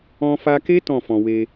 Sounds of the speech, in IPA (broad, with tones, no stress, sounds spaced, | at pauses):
ɔ̃˧ f a˧ k e˦ t ɔ̃˦˨ f ɔ̃˨ w e˧